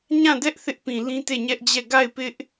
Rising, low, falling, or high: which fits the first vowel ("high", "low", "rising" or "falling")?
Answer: falling